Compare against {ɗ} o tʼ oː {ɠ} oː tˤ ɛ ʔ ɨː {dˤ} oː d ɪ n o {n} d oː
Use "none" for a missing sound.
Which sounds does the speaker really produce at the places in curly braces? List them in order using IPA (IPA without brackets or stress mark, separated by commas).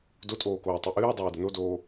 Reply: d, k, dˤ, none